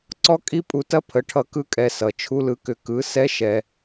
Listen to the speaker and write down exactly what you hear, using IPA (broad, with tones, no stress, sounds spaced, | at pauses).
ǀ ɔ˦ kʼ i˦ pʼ u˧ t ɐ˦ pʰ ə˨˦ ʈʰ ʌ˧ k ɯ˦ kʼ ɛ˧ s ʌ˨ t͡ʃʰ u˦ l ɯ˧ k ʏ˧ k ɯ˨˦ s ɛ˦ ʃ ɛ˧